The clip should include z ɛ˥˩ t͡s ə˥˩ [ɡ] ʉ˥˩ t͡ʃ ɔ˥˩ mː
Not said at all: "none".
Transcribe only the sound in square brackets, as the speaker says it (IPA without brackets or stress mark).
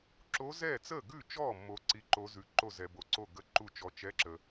ɡ